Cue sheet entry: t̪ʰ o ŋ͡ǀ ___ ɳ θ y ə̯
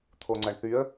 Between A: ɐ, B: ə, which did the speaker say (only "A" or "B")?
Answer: A